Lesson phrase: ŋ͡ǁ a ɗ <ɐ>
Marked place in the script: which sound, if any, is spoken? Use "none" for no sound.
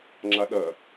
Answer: ɐ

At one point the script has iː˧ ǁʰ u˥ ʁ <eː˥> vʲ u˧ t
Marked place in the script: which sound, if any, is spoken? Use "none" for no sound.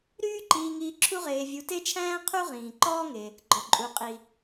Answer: eː˧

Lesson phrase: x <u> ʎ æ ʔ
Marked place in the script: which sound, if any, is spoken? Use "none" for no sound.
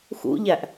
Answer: ṵ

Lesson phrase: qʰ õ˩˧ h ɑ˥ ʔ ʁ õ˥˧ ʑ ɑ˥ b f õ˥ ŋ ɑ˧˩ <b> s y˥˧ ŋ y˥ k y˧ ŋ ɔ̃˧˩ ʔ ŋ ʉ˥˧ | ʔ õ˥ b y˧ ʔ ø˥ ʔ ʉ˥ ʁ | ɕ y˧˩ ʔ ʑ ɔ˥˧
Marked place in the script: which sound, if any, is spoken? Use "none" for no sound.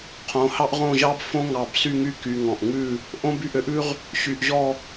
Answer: b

